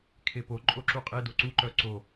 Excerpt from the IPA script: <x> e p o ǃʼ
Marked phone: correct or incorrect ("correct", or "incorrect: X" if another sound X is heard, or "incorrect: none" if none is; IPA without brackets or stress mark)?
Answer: incorrect: kʰ